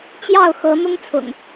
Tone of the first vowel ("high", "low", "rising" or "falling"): falling